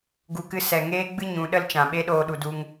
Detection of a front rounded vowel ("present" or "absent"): absent